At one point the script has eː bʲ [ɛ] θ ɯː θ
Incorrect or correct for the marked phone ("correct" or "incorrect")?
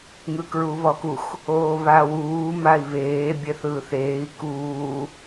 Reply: correct